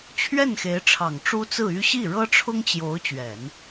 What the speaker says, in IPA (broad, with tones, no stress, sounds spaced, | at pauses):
t͡ɕʰ ɥ ɛ˥˩ n x e˧˥ ɪ̯ ʈ͡ʂʰ ɑ˨˩ ŋ ʈ͡ʂ u˥ t͡s ɹ̩˥˩ y˥ ɕ i˥˩ ɻ ɤ˥ ʈ͡ʂʰ ʊ˥ ŋ t͡ɕ j o˧˥ ʊ̯ t͡ɕ ɥ ɛ˨˩˦ n